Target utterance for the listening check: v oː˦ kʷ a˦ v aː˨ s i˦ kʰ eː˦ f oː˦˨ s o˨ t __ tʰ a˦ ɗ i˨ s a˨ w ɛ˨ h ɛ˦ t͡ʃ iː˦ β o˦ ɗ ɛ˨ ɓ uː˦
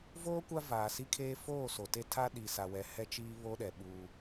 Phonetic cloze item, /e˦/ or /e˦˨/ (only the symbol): e˦